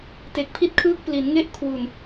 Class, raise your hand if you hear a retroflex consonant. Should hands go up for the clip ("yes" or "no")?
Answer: no